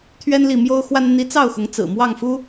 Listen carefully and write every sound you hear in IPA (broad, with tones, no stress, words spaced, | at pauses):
t̪ʰɥɛ˥nli˥˩mjo˥ʊ̯xwa˥n n̪i˧˥t͡sɑ˥˩ʊ̯xʊ˧˥ŋ t͡sɹ̩˨˩mwɑ˥˩ŋfu˥